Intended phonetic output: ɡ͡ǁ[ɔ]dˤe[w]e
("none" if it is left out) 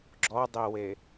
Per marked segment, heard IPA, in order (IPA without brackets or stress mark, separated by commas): ɔ, w